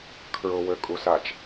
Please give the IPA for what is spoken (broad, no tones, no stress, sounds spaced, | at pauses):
kʰ ɹ ʊ w ø kʼ u s a t͡ʃ